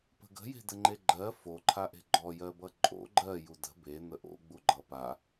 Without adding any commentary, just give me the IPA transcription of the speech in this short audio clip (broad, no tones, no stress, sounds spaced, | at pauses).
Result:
p ə̤ ɡ ə̤ j e̤ d ə ŋ͡ǃ e ɡ͡ǃ ɜ f o ǃʰ a ʔ e̤ ɡ͡ǃ ɔ j ɜ b ʌ ǃʼ o̰ ɡ͡ǃ ɜ j u d ə̤ b e n̪ ə ʔ o̰ ɡ͡b u ɡ͡ǃ ʌ p a